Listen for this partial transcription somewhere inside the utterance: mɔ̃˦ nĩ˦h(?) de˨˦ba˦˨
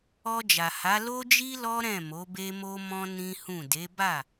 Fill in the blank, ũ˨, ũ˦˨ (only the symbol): ũ˦˨